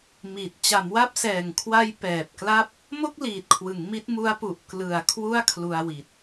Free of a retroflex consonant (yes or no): yes